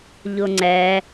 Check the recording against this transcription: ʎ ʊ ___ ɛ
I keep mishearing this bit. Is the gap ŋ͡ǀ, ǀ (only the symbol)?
ŋ͡ǀ